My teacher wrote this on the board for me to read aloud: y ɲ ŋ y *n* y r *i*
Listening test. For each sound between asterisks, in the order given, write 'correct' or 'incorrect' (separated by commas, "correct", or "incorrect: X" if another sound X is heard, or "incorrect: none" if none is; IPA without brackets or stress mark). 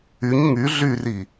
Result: incorrect: ɮ, correct